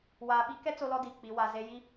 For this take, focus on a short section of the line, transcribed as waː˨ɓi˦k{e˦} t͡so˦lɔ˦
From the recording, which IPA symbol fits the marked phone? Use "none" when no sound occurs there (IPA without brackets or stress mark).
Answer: ɛ˦